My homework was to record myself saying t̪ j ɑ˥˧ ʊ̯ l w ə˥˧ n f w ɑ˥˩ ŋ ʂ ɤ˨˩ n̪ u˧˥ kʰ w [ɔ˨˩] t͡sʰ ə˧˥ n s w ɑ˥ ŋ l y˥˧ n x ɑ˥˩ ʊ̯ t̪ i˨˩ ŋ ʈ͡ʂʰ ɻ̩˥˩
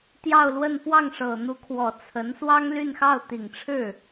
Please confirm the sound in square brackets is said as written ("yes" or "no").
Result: yes